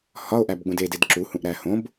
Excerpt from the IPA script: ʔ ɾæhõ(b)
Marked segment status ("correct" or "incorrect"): correct